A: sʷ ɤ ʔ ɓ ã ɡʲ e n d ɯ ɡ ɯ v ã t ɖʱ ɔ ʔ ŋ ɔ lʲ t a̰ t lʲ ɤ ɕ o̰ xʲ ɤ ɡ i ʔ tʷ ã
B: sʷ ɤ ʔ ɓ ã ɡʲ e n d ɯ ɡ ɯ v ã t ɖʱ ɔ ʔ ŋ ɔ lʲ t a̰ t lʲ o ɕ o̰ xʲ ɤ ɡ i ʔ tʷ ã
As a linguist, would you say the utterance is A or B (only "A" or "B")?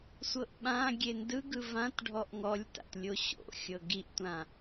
B